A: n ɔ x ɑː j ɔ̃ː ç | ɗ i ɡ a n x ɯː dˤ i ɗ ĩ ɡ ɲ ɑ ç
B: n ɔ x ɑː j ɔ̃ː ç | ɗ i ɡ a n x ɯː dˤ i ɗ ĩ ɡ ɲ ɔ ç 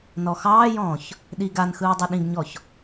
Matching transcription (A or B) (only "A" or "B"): B